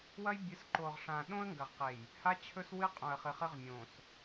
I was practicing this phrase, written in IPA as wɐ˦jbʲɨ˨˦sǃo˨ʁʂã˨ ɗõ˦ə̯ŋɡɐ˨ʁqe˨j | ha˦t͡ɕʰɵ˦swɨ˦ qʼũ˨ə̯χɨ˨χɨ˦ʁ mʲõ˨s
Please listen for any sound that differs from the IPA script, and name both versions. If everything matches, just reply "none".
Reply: none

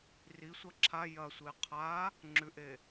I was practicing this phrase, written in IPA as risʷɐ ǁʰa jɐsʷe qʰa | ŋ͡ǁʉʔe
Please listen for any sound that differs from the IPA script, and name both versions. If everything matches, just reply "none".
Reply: none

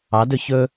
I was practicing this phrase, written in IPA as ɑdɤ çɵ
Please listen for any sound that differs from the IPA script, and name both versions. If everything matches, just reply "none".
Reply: ɤ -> ɵ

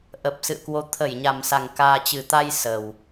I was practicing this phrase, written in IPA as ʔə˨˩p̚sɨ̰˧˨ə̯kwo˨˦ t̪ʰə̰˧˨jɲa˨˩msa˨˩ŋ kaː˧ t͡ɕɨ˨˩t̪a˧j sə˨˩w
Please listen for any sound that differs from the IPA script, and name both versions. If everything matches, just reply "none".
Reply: ə̰˧˨ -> ə˧˩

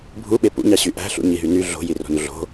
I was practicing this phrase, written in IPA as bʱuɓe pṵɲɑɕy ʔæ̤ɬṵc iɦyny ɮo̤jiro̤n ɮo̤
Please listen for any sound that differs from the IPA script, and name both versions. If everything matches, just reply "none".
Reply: c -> ɲ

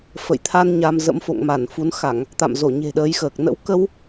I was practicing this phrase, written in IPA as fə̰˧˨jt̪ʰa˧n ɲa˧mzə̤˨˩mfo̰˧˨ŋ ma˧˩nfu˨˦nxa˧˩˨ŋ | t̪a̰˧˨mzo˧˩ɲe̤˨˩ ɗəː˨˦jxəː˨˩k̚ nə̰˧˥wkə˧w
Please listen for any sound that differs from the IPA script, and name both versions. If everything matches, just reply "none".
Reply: ə̤˨˩ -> ə̰˧˥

